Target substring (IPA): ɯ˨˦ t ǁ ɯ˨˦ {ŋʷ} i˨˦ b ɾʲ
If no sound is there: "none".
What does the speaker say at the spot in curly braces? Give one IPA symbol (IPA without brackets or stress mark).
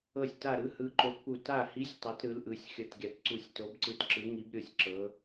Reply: ŋ